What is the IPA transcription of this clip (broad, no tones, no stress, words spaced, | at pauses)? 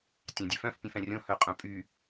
tʲɑ̃dʲœfœ̃f pʲœ̃fɛ̃rʲõ hœqʼœ̃pʼy